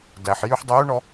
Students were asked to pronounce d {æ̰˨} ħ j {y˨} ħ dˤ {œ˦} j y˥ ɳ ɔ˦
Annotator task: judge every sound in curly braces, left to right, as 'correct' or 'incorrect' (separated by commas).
incorrect, incorrect, correct